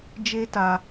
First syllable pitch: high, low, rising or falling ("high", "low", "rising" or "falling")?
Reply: high